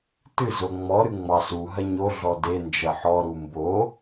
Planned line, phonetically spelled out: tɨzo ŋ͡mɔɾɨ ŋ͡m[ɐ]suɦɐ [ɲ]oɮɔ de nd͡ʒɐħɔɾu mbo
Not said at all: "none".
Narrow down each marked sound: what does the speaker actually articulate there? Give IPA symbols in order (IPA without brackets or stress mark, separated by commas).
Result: ɑ, ɲ